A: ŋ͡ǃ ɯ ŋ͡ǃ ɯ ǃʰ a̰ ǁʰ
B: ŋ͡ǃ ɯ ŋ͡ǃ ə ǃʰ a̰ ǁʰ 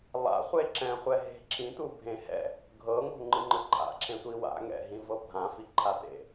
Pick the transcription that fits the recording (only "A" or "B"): A